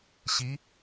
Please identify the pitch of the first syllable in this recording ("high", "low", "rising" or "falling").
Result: rising